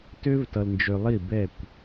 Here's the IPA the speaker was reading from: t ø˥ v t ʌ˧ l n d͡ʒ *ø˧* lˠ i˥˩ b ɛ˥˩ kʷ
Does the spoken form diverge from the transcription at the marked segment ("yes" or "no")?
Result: no